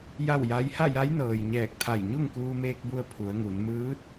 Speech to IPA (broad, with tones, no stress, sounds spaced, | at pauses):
j a˥˨ w j a˧˥ j h a˥˨ j a˧˥ j n ɤː˩ j ɲ ɛː˧˩ k̚ t̪ʰ a˧˩ j ɲ u˥˨ ŋ k uː˧ m eː˧ k̚ b u˧ ə̯ pʰ u˩˧ ə̯ ŋ u˩˧ n m ɯː˧˥ t̚